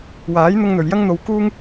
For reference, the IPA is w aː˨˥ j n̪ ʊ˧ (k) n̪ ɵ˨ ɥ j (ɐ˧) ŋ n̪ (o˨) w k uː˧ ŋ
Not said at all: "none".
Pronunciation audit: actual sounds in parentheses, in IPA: ŋ, ɐ˧, o˨

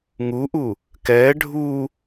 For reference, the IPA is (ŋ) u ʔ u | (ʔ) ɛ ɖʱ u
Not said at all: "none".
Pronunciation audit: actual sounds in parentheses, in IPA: ŋ, k

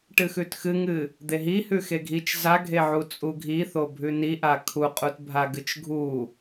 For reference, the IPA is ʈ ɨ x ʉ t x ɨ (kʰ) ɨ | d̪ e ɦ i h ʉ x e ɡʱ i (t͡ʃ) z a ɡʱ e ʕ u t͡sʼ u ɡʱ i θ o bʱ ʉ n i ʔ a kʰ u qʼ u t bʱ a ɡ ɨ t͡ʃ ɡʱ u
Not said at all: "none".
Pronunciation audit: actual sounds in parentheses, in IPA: ŋ, t͡ʃ

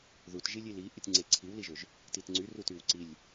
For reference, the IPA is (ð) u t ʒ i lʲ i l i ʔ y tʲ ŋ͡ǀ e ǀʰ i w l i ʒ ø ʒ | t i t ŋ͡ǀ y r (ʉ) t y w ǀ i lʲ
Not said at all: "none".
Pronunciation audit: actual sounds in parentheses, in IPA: ð, u

